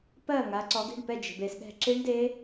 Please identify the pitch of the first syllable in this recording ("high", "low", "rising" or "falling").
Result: falling